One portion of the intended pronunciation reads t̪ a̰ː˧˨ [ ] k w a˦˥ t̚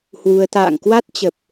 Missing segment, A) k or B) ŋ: B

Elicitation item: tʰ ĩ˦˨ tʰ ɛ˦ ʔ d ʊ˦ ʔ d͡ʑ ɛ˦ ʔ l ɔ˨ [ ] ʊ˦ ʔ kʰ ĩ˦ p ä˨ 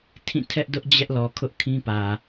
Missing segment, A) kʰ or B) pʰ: A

